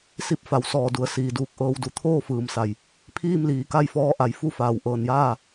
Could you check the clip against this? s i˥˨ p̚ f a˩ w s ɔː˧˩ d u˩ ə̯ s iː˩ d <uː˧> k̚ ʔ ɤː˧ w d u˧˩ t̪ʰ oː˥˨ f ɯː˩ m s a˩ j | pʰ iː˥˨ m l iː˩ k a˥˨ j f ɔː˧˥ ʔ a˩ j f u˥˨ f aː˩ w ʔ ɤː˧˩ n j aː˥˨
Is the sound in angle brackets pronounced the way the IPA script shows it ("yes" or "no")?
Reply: yes